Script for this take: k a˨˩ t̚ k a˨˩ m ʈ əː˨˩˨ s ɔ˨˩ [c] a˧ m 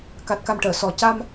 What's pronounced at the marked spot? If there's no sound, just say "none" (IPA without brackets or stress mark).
c